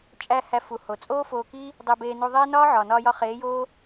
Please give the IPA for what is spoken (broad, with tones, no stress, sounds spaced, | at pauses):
t͡ʃʼ æ˧ h æ˧ f u˨ h o˨ t͡sʼ oː˦ f oː˧ k i˦ | dˤ e˧ b eː˧ n u˧ ðˤ eː˦ n ɒː˦ ʕ ɒː˨ n ɒː˧ j ɒ˧ χ eː˨˦ j oː˦